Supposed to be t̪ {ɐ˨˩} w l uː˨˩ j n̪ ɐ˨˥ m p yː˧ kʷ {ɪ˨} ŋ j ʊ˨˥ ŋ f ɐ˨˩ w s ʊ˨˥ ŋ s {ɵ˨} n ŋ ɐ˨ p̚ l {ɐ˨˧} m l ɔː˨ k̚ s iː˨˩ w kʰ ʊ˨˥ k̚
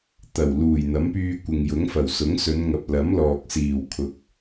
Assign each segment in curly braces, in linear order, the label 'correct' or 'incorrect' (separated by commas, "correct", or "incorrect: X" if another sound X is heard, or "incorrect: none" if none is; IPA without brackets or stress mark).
correct, correct, incorrect: ɵ˨˧, incorrect: ɐ˨˥